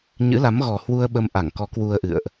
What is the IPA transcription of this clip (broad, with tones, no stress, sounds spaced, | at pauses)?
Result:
ɲ ɨ̰˧˥ l a˨˦ m ɣ ɔ˨˩ h w u˧ ə̯ ɓ ə˧ m ʔ a˧˩ ŋ k ɔ˨˦ k w u˧ ə̯ ʔ ɨ̰˧˨ ə̯ ʔ